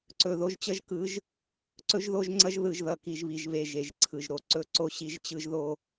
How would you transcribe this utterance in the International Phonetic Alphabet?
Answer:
ǀ ɵ˨ ð o˦ ʒ t͡ɕ ʌ˦ ʒ k ɯ˨˦ ʒ | ǀ ɵ˦ ʒ ð o˦ ʒ ŋ͡ǀ ʌ˦ ʒ ð ɯ˨ ʒ ð ʌ˨ k i˨ ʒ β i˨ ʒ β e˨ ʒ e˨ ʒ ǀʰ ɯ˨ ʒ ɾ o˨ ǀ ɵ˦ ǀ o˦ ɕ i˦ ʒ t͡ɕ ɯ˦ ʒ ð o˦

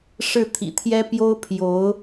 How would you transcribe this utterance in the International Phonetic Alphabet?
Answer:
ʂ ɻ̩˥˩ t̪ʰ ḭ˨˩ t̪ʰ j ɛ˥ p j o˥ ʊ̯ pʰ j o˧˥ ʊ̯

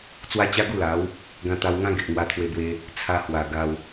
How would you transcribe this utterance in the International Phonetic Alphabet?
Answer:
t͡s w a˦ t͡ɕ a˦ ɡ u˥˧ l a˨˦ w | ɡ ã˧ t̪ a˧ w ŋ ã˦ ɡ e˨ ʔ ŋ w a˧ t̪ʰ w e˧ b w e˦ | t͡sʰ a˧ h w a˨˩ ɡ a˧ w

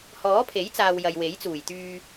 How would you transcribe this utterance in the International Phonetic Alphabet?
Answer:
h ɔː˨˥ pʰ e˨˥ j t͡s aː˨ w j ɐ˨ j w e˨˥ j t͡s uː˨˩ j t̪ yː˧

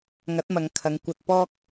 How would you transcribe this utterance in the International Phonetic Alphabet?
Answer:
ŋ ɐ˨˥ t̚ m ɐ˨ ŋ kʰ ɐ˨˧ ŋ kʷ ɐ˧ t̚ p ɔː˥ k̚

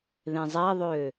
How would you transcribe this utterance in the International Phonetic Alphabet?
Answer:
ð ẽ zˤ æ ðˤ ø

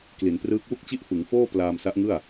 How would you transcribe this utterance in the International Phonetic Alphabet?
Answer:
k l i˩˦ n p r ɯː˦˥ k̚ w u˥˩ k̚ t͡ɕ i˥˩ ʔ f ɯ˩˦ ŋ f oː˥˩ p l aː˧ m s a˦˥ ʔ ŋ ɯ˥˩ a̯

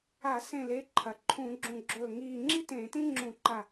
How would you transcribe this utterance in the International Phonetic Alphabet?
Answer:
a˧˩˧ s ẽ˧˩ l e˩˧˩ ǃʰ ɐ˩ ǃʰ ũ˧˩˧ ɡ͡ǁ ũ˧˩ ɡ͡ǁ ɵː˧˩ ŋ iː˧˩ ŋ͡ǁ i˥ t ẽ˧˩˧ t ĩ˥ ŋ͡ǁ ũ˧˩˧ ǃ a˧˩

